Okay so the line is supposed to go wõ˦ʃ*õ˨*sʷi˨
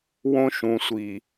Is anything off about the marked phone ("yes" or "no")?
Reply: yes